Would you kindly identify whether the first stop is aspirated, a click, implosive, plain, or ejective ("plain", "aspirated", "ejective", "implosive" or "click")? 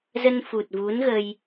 plain